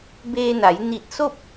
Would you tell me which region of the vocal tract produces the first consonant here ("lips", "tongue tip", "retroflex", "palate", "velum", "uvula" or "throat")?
lips